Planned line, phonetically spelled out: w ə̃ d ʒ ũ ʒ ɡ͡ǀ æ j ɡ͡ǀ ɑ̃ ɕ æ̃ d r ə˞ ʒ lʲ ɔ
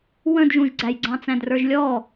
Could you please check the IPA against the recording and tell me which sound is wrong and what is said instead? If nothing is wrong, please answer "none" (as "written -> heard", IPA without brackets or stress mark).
ɕ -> t͡s